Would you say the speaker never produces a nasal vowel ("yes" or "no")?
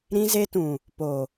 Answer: no